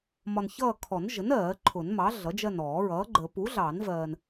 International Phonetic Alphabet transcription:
m ɒ˨ n ç ʌː˦˨ kʰ ɔ˨˩˦ n ʒ ə˩˥ n ɜː˨˩˦ ǃʰ ʊ˨˩˦ n m ɑ˩˥ ɮ ʌ˩˥ d͡ʒ ɜ˦˨ n ɔː˨˩˦ ɹ ʌː˩˥ ɡ͡ǃ ə˨˩˦ p u˩˥ ɮ ɑ˨˩˦ n v ɜː˨ n

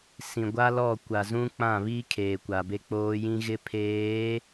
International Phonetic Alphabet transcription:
s ĩ˨ ɡʷ a˦ l ɔ˦˨ kʷ a˨ z ũ˦ k͡p ã˦˨ β i˦ kʰ eː˨ kʷ a˨ b e˦ k͡p oː˦ j ĩ˦ ɣ ɪ˦ pʰ eː˨˦

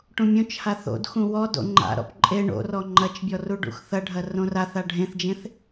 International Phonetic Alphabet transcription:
ʈ ũ mʲ õ t͡ʃ h a θ o̰ d x ũ w ɔ d o̰ ŋ͡ǃ a̰ ɾ ɔ̰ p ǃʼ e ɳ o̰ r ɔ ŋ͡ǃ ɐ t͡ʃ bʲ ɔ r u ɖ ṵ x θ ɐ ɖʱ ɐ r õ r a θ a ɖʱ ẽ θ d͡ʒ ẽ θ

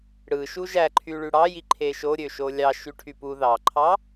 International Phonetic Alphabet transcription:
ɽ ɯ ʃ u ʒ æ ǃʰ y ɭ y ɽ ɑ j i ǃʰ e ʃ o ɾʲ ø ʃ o lʲ ɑ ʃ y ʈʰ y p u ð ɑ ǃʰ ɑ

